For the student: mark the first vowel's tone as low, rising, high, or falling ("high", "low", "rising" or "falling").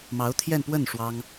rising